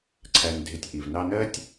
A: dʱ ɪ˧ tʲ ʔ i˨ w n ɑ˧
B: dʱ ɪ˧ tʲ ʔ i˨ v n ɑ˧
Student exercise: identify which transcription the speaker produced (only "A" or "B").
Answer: B